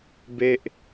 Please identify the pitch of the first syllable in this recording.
high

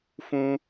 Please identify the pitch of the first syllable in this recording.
high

